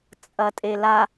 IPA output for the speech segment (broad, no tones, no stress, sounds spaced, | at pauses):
t͡sʼ ɐ tʼ e l a